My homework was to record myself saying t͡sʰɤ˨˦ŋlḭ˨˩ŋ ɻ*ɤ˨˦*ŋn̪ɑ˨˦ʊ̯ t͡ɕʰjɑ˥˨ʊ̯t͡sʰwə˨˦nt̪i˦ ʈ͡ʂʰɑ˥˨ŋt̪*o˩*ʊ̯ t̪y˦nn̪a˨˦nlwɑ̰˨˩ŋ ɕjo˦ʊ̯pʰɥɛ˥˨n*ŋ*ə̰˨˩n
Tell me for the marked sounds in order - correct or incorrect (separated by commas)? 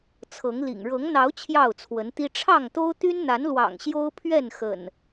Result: correct, incorrect, incorrect